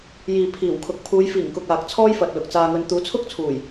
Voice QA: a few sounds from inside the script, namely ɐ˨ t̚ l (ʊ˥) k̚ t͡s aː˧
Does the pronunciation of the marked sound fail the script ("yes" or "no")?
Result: yes